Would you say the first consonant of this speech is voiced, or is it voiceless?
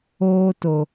voiceless